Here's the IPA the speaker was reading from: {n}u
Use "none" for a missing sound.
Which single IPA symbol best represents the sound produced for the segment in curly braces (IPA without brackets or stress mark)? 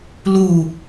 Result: l